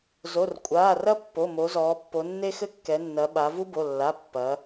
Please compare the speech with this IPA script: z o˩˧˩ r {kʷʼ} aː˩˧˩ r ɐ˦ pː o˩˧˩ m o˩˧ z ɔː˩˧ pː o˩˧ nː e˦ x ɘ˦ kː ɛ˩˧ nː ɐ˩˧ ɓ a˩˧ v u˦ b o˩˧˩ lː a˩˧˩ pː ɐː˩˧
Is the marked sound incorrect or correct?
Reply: correct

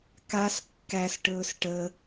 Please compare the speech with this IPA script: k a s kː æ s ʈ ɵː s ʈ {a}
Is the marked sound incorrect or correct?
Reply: incorrect: ə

